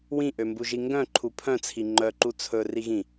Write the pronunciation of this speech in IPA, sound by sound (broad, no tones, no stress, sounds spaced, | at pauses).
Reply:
w ĩ ʔ ø m b u ʒ i ŋ ɡ œ̃ ǃʰ u pʰ œ̃ t͡sʰ i ŋ͡ǃ œ ǃ u t͡sʰ ɵ r i ɣ ĩ